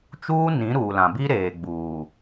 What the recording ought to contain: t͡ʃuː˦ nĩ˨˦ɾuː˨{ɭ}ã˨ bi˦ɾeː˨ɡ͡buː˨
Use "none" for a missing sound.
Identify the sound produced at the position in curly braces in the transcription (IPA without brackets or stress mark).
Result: l